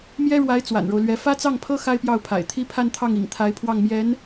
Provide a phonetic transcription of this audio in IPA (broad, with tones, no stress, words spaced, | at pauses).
mjɛ˥ɻwa˧˥ɪ̯ t͡swa̰˨˩nɻo˦ʊ̯lɥɛ˧˥ fä˥t͡sɑ˥˩ŋpʰɤ˥ xa˥ɪ̯pjɑ˥˩ʊ̯pʰa̰˨˩ɪ̯t̪ʰi˥ pʰa˥˧nt̪ʰɑ˥˩ŋḭ˨˩ŋ t̪ʰa˧˥ɪ̯pʰwɑ˥˩ŋmjɛ˧˥n